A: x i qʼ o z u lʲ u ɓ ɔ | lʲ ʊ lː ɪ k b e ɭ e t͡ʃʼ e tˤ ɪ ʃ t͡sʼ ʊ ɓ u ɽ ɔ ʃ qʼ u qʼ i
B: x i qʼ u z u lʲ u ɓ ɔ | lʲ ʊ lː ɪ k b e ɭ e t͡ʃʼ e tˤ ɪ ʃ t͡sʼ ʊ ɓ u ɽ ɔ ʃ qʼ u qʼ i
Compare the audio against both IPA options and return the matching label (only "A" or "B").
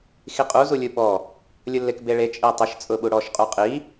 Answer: B